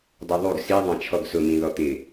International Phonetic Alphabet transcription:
dˤuðˤuɡ si ðˤãt͡ʃʰɔɡsʊ mĩðɔt̪ɪ

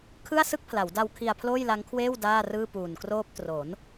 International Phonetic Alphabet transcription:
kʰɯ˥˩a̯sɯ˥˩k̚pʰla˩˦wda˧w kʰi˧a̯pʰloː˥˩jla˦˥ŋkʰweː˥˩w daː˥˩rɯː˥˩ puː˨˩n kroː˦˥p̚ tro˩˦n

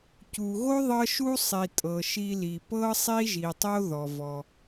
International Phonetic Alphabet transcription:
cu˩ɣo˥ ðˤɤ˧ ʃu˧sˤi˩ tʼɤ˩ʃi˧li˩ pɤ˥ sˤi˥ʒi˩tˤo˥ ðɔ˩vɔ˩

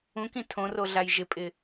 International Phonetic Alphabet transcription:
ũkĩ tʰõroɮaj ʒɪpʼɪ

